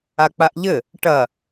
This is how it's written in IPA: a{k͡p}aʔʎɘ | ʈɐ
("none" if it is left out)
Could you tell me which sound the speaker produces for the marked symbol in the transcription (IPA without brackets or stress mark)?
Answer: k͡p